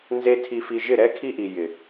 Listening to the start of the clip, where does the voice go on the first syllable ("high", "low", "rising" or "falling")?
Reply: high